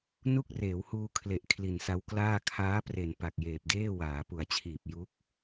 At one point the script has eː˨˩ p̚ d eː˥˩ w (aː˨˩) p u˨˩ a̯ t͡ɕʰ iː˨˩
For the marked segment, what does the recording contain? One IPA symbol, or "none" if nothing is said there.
aː˩˦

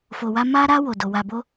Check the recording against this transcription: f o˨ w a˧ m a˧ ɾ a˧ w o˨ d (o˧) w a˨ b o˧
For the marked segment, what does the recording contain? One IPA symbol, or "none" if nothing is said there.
o˨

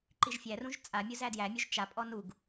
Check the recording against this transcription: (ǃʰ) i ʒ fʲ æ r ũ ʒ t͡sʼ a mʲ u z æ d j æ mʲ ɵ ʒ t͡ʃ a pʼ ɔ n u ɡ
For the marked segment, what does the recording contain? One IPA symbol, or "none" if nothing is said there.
ǃ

